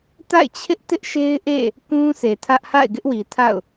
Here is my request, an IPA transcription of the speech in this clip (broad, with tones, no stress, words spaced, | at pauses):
ta̰˦˨ɪ̯t͡ɕʰɪ˦ʔ tɪ˦ʔʃe˦ɪ̯ʔḛ˦˨ | kũ˦sʰe˨tʰä˦ʔ ha̰˦˨ɪ̯ɡɪ˦ʔwi˨tʰa̰˦˨ʊ̯